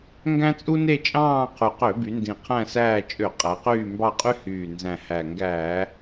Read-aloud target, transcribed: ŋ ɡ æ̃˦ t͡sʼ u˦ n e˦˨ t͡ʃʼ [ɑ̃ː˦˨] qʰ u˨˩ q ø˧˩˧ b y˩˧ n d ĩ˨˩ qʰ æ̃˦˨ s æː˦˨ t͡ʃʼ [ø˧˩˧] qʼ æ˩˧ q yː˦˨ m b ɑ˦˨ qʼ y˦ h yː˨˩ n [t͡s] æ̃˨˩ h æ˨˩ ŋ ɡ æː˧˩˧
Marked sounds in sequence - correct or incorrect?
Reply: correct, correct, incorrect: z

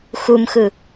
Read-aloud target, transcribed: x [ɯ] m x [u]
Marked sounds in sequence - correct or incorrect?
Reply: incorrect: u, incorrect: ɯ

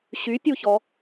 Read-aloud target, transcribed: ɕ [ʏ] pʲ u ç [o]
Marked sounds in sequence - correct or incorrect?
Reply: incorrect: y, incorrect: ɔ

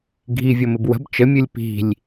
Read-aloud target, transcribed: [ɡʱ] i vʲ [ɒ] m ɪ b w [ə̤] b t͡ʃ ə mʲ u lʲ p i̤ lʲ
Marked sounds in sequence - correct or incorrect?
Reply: correct, incorrect: ʌ, correct

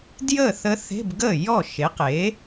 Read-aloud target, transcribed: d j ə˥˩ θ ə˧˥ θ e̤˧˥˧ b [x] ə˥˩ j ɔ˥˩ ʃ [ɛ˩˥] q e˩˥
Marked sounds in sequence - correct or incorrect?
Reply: incorrect: ɡ, incorrect: e˩˥

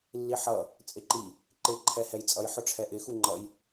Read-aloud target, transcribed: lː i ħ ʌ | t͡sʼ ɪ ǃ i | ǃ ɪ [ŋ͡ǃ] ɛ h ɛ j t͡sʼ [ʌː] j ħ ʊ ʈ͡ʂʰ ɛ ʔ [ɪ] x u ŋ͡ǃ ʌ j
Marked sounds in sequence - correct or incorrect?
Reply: incorrect: ǃʰ, incorrect: ʌ, correct

